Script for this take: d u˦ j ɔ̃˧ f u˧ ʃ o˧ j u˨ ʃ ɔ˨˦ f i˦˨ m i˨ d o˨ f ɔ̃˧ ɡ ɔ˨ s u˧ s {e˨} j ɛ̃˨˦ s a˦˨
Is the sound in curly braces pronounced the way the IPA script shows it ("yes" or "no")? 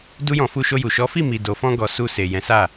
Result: yes